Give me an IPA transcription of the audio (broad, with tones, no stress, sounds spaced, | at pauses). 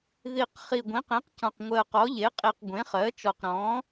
ð i˨˩ q χ i˨˩ ɡʷ ĩ˩˥ q ĩ˩˥ q c ɔ̃˨˩ q ŋʷ ɜ˨˩ q ɔ˩˥ ʎ e˩˥ qʼ i˨˩ q ɡʷ ẽ˩˥ χ ɜ˩˥ t͡ʃ ɔ˨˩ q ɾ ɔ̃˩˥